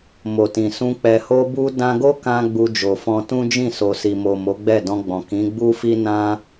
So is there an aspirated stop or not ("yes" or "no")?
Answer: no